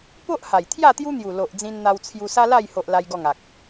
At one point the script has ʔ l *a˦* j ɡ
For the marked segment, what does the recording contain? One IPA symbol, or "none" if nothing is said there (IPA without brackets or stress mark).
a˦